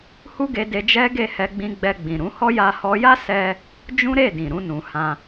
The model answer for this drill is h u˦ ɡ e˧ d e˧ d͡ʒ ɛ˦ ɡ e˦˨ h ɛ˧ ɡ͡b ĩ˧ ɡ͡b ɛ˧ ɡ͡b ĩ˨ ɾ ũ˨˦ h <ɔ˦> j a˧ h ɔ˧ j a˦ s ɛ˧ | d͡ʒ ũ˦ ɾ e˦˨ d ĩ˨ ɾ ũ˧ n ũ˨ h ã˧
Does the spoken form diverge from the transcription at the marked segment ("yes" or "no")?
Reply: no